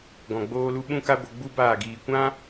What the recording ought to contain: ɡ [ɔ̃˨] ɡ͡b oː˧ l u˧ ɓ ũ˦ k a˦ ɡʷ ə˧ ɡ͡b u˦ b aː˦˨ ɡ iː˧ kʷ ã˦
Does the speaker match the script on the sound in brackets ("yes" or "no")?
yes